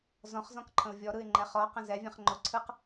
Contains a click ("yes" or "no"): yes